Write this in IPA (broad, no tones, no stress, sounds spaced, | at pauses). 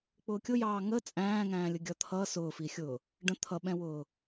k͡p ʊː kʲ ʊ j ɑː ŋ ə t͡sʼ æ̃ː ŋ æ̃ː lʲ ə ɡʲ ʌ t̪ʰ ʌ s ʊː f i xʲ ʊː | ɖ ə̃ t̪ʰ ʌ ɓ ɛ̃ w ʊː